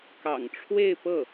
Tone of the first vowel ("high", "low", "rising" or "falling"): low